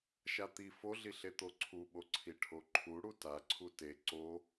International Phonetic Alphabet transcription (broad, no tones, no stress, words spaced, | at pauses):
ʃat̪i foɮi ɬet̪oǀʰuɓo ǀʰiʈʰoǃʰu ɽuta ǀʰute ǀo